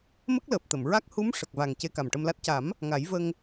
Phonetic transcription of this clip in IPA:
m ə˦˥ k̚ l əː˨˩ p̚ t̪ ə˨˩˨ m ɹ a˦˥ k̚ h u˧˥ m ʂ ə˨˩ k̚ v a˨˩ ŋ c e˧ k a˨˩ m ʈ ə˧ m l a˦˥ t̚ c a˨˩˦ m | ŋ a˨˩˦ j v ə˧ ŋ

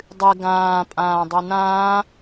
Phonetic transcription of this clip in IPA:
dˤ ɨ ɡ ãː pʼ ãː dˤ ʉ n ãː

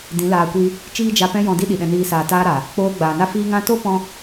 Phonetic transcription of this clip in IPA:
d ĩ˨˦ l aː˧ kʷ i˦ | t͡ʃ iː˦ d͡ʒ a˧ p ɛ̃˦ j ɔ̃˧ d i˦ ɗ i˨ ɗ ɛ̃˧ n iː˧ s aː˨ t aː˧ ɾ a˨ | k͡p oː˧ ɡ͡b aː˨ n a˦ f iː˦ ŋ ã˧ t o˦ p ɔ̃˦

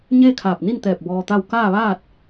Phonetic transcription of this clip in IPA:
ɲ eː˥˨ kʰ aː˧˩ p̚ n i˥˨ n t̪ ɛː˧˩ p̚ b ɔː˧ t̪ a˥˨ w k aː˥˨ ʋ aː˥˨ t̚

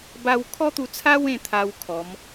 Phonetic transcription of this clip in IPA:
b a˧ w kʰ ɔ˦ t̪ u˧ t͡sʰ a˦ w ẽ˥˧ t̪ʰ a˧ w kʰ ɔ˨˦ m

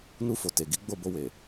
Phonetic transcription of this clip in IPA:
n u˧ f o˨ t e˨ ɡ i˨˦ ɡ͡b o˦˨ b o˧ w e˨

